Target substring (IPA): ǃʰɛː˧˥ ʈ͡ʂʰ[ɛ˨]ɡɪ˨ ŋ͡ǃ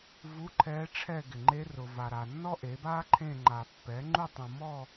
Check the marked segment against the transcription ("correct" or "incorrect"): incorrect